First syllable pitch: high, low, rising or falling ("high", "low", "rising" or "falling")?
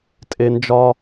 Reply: low